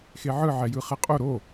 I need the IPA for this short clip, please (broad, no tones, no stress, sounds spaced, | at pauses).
x e ʕ ɯ ʕ ɛ j ɯ χ ɛ qʼ o ɾ o